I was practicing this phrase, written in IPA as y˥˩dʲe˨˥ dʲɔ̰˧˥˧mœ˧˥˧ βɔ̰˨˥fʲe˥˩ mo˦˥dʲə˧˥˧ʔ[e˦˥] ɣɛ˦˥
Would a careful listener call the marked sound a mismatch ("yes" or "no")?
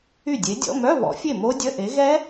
yes